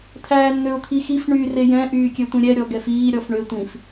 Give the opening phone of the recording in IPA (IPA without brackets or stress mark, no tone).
t̪ʰ